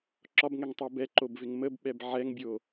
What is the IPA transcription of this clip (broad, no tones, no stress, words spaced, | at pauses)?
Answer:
ǁɒbŋɛŋtˤɤ bɛǃobvɪŋ məbɓɛb ʕɛŋbʲo